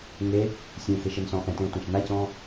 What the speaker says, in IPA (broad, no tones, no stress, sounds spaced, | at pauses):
ŋ e | sʲ ũ x e ʃ ɘ n s ɔ̃ ʔ ɛ̃ t ẽ ʊ̯ tʷ ɛ̃ ʃ n a c ɔ̃